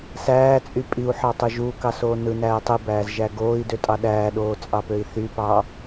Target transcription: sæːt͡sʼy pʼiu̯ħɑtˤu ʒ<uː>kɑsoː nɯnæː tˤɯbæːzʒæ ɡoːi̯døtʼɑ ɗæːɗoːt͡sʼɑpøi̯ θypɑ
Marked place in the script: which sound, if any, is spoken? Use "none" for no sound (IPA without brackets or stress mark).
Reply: uː